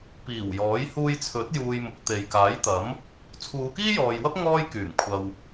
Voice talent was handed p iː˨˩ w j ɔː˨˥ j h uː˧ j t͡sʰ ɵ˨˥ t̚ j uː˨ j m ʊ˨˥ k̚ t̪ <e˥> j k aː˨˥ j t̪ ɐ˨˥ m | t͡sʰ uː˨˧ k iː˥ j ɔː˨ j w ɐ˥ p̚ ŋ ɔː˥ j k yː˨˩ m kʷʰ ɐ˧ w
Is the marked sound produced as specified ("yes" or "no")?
no